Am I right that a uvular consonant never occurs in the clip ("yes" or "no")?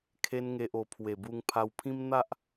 yes